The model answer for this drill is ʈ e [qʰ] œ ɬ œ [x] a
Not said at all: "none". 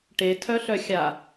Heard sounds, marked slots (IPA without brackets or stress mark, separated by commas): tʰ, xʲ